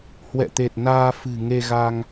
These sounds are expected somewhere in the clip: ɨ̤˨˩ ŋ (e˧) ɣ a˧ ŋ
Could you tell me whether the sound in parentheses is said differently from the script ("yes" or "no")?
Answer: no